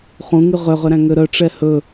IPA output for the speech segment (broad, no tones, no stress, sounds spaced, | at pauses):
χ ũ ŋ y ʁ ø ʁ ø ɾ æ̃ ŋ ø ɾ œ ʈ͡ʂ ɛ h ɵ